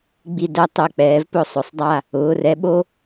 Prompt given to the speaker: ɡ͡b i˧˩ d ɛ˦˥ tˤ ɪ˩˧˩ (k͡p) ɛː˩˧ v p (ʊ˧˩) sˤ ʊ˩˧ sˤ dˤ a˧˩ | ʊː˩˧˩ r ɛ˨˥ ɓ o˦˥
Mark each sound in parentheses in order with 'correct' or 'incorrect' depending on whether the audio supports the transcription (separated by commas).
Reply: correct, correct